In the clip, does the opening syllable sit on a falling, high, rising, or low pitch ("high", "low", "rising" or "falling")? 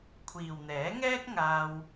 low